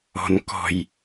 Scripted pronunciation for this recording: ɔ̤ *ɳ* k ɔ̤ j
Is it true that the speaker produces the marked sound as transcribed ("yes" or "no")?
no